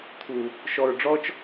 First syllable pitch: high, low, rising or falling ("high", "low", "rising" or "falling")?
low